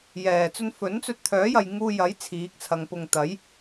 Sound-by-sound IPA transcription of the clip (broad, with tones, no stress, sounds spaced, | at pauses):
j ɛː˨˩ t͡s ɵ˧ n f ɵ˨˥ n t͡s ɵ˧ t̚ t̪ʰ œː˨˥ j ɐ˨ j ŋ uː˧ j ɐ˨˥ j t͡sʰ iː˨˥ k̚ t͡sʰ ɐ˨˧ ŋ p ʊ˨ ŋ t̪ ɐ˨˥ j